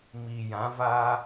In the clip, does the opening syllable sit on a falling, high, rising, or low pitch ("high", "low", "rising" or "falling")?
low